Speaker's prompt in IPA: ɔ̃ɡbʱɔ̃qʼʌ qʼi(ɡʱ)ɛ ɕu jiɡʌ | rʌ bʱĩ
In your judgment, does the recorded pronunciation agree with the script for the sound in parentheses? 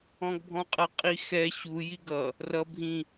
no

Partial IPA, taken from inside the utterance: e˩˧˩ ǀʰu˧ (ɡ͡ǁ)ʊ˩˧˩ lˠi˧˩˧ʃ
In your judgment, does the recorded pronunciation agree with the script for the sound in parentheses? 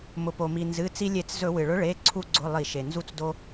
no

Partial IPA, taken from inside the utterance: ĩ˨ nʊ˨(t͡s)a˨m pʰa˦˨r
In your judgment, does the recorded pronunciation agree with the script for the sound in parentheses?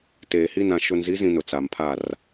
yes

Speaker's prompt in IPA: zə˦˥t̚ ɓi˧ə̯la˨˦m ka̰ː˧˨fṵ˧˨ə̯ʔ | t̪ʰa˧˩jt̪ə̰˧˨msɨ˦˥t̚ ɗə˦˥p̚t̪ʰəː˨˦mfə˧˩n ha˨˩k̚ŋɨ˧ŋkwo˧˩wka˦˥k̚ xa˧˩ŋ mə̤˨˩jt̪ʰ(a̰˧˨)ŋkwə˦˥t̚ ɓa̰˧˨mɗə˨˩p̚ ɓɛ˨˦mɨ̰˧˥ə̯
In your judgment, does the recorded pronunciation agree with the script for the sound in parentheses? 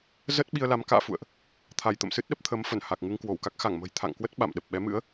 yes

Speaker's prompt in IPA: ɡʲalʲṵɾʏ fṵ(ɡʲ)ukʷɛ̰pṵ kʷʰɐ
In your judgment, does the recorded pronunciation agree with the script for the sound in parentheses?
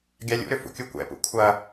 no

